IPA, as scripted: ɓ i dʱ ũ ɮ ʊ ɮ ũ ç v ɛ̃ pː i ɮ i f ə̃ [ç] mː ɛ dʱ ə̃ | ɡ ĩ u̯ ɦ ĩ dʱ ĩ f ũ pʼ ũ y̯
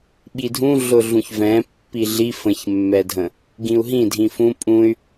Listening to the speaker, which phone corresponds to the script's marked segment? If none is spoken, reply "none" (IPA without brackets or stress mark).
ç